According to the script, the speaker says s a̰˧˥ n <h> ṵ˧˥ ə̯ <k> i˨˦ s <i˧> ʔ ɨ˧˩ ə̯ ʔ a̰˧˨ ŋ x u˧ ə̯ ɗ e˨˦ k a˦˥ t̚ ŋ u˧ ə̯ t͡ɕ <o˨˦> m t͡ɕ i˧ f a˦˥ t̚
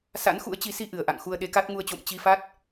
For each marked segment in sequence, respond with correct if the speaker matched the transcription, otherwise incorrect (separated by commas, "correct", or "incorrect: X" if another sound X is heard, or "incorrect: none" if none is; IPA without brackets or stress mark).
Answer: incorrect: x, incorrect: t͡ɕ, correct, incorrect: o̰˧˨